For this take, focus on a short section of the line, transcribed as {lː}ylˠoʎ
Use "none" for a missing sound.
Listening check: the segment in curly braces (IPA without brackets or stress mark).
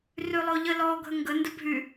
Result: r